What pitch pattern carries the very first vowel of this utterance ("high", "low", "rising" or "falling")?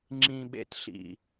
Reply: low